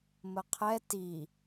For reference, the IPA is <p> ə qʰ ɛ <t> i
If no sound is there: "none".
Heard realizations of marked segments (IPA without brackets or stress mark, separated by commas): m, t